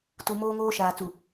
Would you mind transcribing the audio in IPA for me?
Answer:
t u˨ m oː˦ ŋ oː˦ ʃ aː˨ t͡s u˨

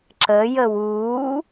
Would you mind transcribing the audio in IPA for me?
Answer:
ǁ ə j ə w uː

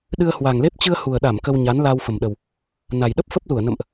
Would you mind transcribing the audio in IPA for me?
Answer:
ɗ ɨ˧ ə̯ h w a˨˩ ŋ l e˦˥ p̚ t͡ɕ ɨ˧ ə̯ h u˨˩ ə̯ ɗ a˧˩ m k ə˧ w ɲ a˨˦ n l aː˧ w f ə˨˩ m ɗ ə˨˩ w | n a˨˩ j ɗ ə˦˥ p̚ f ə˦˥ p̚ l u˧˩ ə̯ n ə̰˧˨ m ʔ

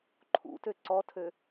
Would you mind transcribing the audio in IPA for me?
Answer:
ǃʰ ṵ t ø ǀ ɔ tʰ ø

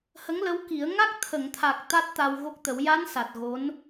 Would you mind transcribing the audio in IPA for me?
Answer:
h ə˧˥ ŋ l ə˧˥ w k i˨˩˦ ə̯ ŋ a˦˥ k̚ t̪ʰ ə˨˩˨ ŋ t̪ʰ a˨˩ k̚ t̪ a˦˥ t̚ t̪ a˧ w ɣ o˦˥ k̚ t̪ ə˨˩˦ w j a˧˥ n s a˨˩ t̚ ɣ o˧˥ n

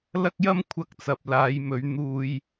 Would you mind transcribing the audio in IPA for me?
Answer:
l ɐ˥ k̚ j ɐ˥ m kʷʰ ɐ˧ k̚ t͡s ɐ˨ p̚ l aː˨˧ j m ɵ˨˧ ɥ n̪ uː˧ j

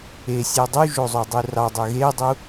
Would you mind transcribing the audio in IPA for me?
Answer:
e sʲ e dˤ u ʒ o zˤ o dˤ u r ɑ dˤ ø ɣ e dˤ u

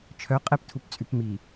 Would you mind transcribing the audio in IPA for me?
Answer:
t͡ʃʰ œ qʼ ɛ p tʰ u p t͡sʼ y p m i

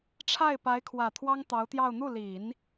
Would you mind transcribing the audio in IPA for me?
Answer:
ʈ͡ʂʰ a˥˩ ɪ̯ p a˧˥ ɪ̯ kʰ w ä˨˩ t̪ʰ w ɑ˥ ŋ t̪ ɑ˧˥ ʊ̯ t̪ j ɑ˥˧ ʊ̯ n̪ u˥˩ l i˨˩˦ n

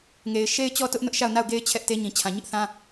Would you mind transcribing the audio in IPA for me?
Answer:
ŋ e˨ ɪ̯ ʃ e˦ ɪ̯ t͡ɕ ɔ˦ t ʊ˦ ʔ n ʊ˦ ʔ ʃ a˦˨ ʊ̯ n a˦˨ ʊ̯ ɡ e˦ ɪ̯ t͡ɕʰ ɛ˦ ʔ t e˦ ɲ ĩ˨ t͡ɕʰ ã˨ ɲ ɪ˦ ʔ θ ã˦

